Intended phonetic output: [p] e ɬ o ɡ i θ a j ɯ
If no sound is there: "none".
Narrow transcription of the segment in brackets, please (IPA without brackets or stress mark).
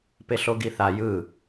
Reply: p